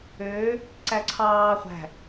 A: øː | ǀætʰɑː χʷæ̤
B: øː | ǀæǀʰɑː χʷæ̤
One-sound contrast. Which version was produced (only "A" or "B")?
B